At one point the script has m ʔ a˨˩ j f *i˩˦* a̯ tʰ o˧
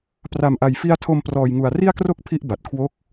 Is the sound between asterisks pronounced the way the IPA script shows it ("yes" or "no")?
no